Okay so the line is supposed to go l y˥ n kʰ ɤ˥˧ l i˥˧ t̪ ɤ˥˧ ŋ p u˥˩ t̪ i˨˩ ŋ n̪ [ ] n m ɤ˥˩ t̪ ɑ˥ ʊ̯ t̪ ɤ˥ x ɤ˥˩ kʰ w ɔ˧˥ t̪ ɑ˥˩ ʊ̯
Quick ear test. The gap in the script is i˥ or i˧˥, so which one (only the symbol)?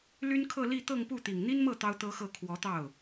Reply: i˥